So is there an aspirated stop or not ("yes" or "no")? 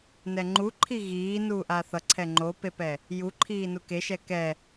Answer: yes